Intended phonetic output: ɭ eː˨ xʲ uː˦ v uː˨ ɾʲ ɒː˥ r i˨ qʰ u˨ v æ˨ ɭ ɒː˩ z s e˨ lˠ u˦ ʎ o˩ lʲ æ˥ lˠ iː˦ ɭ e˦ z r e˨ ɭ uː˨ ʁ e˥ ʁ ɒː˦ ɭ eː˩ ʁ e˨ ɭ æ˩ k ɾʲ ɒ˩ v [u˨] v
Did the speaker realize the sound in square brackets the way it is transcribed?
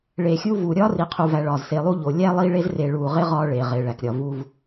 yes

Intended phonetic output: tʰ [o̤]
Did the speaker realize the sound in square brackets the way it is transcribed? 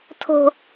yes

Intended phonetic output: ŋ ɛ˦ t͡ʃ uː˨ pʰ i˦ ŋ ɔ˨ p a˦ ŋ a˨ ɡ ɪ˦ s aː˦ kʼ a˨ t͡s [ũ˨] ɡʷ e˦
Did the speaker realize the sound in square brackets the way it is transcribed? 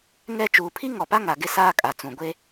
yes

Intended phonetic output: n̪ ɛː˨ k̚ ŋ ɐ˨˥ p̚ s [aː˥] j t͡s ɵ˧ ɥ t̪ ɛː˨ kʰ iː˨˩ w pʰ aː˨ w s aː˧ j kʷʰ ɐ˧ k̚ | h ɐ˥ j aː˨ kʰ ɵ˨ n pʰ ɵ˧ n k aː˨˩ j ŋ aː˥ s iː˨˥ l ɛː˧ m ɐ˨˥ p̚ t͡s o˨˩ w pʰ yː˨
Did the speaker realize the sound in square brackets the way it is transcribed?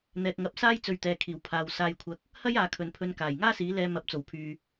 yes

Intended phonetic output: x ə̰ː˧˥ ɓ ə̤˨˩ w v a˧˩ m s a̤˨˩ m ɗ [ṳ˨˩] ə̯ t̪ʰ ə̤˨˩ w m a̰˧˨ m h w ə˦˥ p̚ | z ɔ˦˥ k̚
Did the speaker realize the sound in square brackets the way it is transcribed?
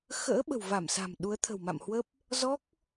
no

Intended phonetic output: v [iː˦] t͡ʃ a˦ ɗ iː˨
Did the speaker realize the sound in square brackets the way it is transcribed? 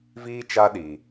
yes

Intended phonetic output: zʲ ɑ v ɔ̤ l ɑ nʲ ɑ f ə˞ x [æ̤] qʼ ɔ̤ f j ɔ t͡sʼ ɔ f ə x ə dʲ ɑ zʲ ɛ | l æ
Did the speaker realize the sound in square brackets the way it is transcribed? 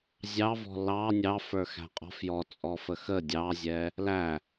yes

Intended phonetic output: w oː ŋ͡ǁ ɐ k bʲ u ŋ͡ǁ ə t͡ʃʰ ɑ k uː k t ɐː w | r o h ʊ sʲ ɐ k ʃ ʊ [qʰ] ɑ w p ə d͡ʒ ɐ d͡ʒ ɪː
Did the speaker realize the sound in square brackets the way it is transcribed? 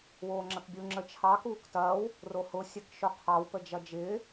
yes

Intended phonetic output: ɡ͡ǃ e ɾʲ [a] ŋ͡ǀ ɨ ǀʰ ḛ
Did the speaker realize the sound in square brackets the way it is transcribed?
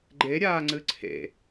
no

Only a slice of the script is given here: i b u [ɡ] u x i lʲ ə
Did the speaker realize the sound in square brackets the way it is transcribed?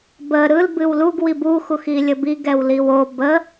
no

